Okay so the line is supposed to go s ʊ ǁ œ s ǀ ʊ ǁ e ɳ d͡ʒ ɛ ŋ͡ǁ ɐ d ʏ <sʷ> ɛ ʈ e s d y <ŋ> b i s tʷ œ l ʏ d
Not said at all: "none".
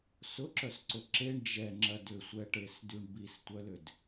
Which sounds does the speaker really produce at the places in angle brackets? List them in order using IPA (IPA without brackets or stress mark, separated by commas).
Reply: sʷ, ɳ